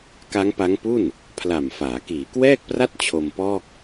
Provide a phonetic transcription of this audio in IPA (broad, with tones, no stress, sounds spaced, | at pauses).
k a˦˥ ŋ p a˦˥ ŋ p u˥˩ n | pʰ l a˨˩ m f aː˩˦ k iː˩˦ k w ɛː˥˩ k̚ p r a˥˩ t̚ t͡ɕʰ o˧ m p ɔː˥˩ k̚